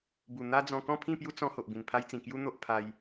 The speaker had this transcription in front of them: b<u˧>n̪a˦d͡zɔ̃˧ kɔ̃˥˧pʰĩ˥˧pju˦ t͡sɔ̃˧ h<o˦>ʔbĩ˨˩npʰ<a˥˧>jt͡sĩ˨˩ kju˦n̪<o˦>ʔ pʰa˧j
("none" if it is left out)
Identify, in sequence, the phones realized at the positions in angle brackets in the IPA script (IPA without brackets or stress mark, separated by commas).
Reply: u˨˩, o˨, a˦, o˦